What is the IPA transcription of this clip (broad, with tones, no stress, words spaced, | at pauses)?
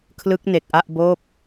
kʰlɯ˦˥k̚ne˨˩k̚ʔa˥˩ʔboː˥˩p̚